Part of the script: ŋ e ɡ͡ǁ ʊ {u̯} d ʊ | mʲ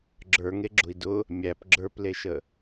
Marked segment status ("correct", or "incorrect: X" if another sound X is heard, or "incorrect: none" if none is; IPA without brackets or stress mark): incorrect: i̯